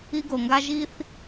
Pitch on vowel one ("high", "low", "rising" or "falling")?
high